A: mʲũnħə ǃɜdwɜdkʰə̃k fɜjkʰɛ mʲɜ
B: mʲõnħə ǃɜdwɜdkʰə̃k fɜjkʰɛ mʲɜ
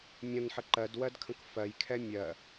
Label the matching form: B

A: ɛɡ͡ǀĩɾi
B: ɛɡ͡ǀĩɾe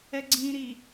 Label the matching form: A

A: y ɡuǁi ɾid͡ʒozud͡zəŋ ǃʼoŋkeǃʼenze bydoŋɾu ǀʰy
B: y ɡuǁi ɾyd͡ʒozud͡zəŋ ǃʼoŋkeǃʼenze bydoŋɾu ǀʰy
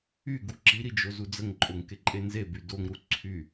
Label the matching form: A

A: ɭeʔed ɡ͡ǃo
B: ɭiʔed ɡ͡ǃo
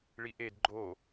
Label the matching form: B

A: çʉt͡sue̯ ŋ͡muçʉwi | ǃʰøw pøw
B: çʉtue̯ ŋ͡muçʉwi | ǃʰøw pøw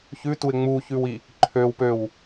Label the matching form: B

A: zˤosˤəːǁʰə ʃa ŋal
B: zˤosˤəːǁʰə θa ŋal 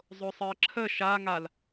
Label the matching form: A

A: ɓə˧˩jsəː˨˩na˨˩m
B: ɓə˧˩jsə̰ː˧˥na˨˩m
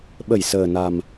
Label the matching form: A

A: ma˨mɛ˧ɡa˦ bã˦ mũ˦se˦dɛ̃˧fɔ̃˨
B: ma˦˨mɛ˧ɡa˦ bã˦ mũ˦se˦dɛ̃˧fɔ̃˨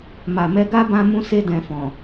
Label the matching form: A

